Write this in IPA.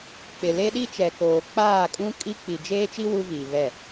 k͡pɪ˨ le˦ɗi˦t͡ʃɛ˨koː˨ k͡paː˦˨kʼũ˦ kʼi˦ k͡pi˨ d͡ʒeː˦t͡ʃi˦ wu˦viː˨ βɛ˦˨

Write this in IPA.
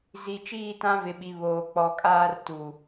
zi˨ t͡ʃiː˦˨tã˦ vɪ˨ɓi˨ βoː˨k͡pɔ˨kʼaː˦r tu˨

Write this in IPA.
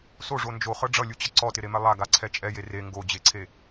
soʐo nd͡ʒoχɤ ɖ͡ʐʌlʲut͡ɕʌ ǀɔtɪɾemɛ lˠaɡaǀʰɛ t͡ʃʼɛje re ŋɡod͡ʑeǀʰe

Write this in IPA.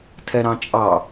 tʰɛɾɑ̃t͡ʃʼɑ

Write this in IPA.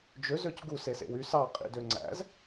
d͡ʒøzøc ɡusesḛw ys ɑqʼḭdø ŋ͡ǀæ̰z

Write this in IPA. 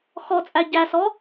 xɔt͡sʼæ ɟæsɔ

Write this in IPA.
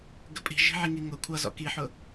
ɡəpʼi̤ ʒi̤ʕiŋiŋʊ kʷʰʌ zɔ̰kiħʊ

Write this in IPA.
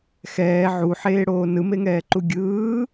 xɛː ʕuħeːɽoː nɯmeŋɛːǃu ɡʲɯː

